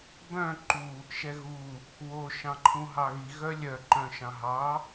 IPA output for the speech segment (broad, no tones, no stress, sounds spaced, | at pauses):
b œ̃ ǃ u | ʃ ɛ ɣ u | w o ʃ ɑ̃ ǃʰ ũ ɦ ɑ ɣ i ɣ œ lʲ œ ǃ œ̃ ʃ ɑ̃ ɦ ɑ